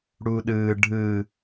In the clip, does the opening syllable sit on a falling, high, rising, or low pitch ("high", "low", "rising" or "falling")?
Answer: high